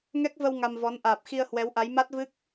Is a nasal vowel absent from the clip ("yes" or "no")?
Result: yes